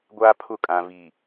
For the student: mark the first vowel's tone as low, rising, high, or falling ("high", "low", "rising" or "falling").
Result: high